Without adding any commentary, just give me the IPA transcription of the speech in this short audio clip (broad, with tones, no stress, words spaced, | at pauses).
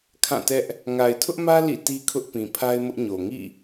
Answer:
kʰã˦˨tɛ˦ʔ | ŋa˨ɪ̯tʰʊ˦ʔmä˦ lḭ˦˨ti˦kʰʊ˦ʔ pĩ˨pʰa˦ɪ̯mʊ˦ʔɲo˨ ŋḭ˦˨